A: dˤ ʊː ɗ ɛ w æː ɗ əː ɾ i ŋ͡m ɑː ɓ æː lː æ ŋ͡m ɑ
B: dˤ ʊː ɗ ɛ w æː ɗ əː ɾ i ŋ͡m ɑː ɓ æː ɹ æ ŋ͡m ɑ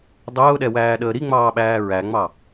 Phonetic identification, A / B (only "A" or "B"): B